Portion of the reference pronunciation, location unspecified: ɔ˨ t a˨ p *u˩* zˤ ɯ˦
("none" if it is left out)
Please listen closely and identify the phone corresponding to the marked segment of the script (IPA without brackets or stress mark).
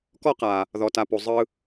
u˩